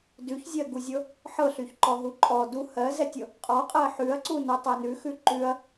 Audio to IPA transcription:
d ʉ ç zʲ ɜ ɡ u zʲ ɤ | ħ ɤ ɬ y ç ǃ ɔ ɦ u ǃʼ ɔ d u h ɜ z ɛ tʲ ɤ | qʼ ɔ qʼ ɜ ħ ʉ ɐ̯ ǀ u n ɤ tˤ ɛ n ʉ x ʉ ǃ ʉ ɐ̯

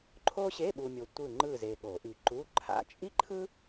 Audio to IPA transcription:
ǃʰ o˥ ɕ e˧˥˧ ɓ u˨ mʲ o˨ tʷ ɯ˦˨ ŋ͡ǃ ɯ˦˨ z e˨ ɠ o˨˩˦ ʔ i˨ ǃ u˧˥˧ ǃʰ a̰˧˥˧ t͡ʃʼ i˥ ǃʰ ɯ˥

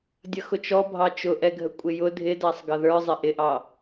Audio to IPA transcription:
dʲ ʌ x ʊ t͡ʃ ɔ bʱ ɑ t͡ʃ ʊ ʔ ɛ ɡʱ ə kʷʼ ɪ j ʊ dʱ ɪ d æ sˤ ɡ ʌ ð ə˞ zˤ ɪ ʔ ɪ ʔ ɑ

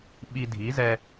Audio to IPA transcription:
ɓ i˧ dʱ i˩˥ z ɛ˧

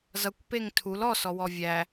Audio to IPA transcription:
z ʌ kʷ p e ŋ tʰ u l ɔ s ɔ w ɔ vʲ æ

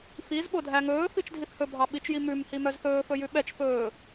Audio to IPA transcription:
f i z ɓ o dʱ æ ŋ ɵː f i t͡ʃ dʱ i θ h ɵ bʱ ɑ ɓ i t͡ʃ j i m ʉ m h i m œ z θ ɵː f ɵ j ʉ ɓ ɛ t͡ʃ f ɵː

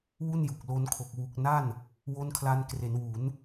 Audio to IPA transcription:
w u˥˩ n j u˨˩ k̚ l o˦˥ n kʰ o˨˩ k̚ w u˨˩ k̚ n a˥˩ n | w o˦˥ n kʰ l a˧ n k r e˩˦ n w u˩˦ n

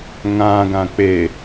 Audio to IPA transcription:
ŋ ã ɡ ã k͡p e

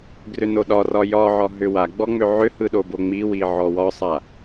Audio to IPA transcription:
ɡ r ʏ n o ɗ ɒ r ɒ j ɒ ʕ ɒ ɦ ʏ w a ɡ͡b ɔ ŋ͡m ʏ ʕ ʏ h ɯ ɗ o b o ŋ͡m i w i ʕ ɔ w ɒ sˤ a

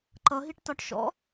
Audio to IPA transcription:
ǃ ʌ ɦ i ʈ t ɒ ʈ ʃ ɔ̰

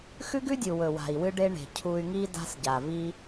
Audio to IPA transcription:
x ʉ˦ ɡ ʉ˦ dʲ u˨ w ɵ˨ w a̤˨ i̯ w ɨ˧ ɖ e˧ ɳ e̤˨ cʰ u˧ y̯ ŋ i˦ d a̤˦ s ɟ a˨ v i˧

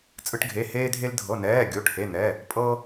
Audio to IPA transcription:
t͡sʼ ɯ˧ ʈ ɡʱ e˩˧˩ h eː˧ dʱ e˧ l dʱ ɤ˩˧˩ n ɛː˩˧˩ ɡʲ o˩˧˩ ʈ h e˩˧˩ n̪ ɛ˩˧˩ | pʼ ɤ˧

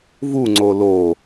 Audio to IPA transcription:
v u ŋ͡ǀ o l o

